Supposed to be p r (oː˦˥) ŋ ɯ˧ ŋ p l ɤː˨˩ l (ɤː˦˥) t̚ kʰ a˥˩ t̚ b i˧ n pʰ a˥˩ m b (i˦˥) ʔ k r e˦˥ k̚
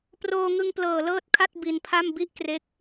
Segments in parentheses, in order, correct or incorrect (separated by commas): incorrect, correct, incorrect